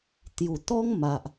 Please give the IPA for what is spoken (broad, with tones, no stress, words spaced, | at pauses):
t̪ju˨˩t̪ɔ˦ŋma˨ʔ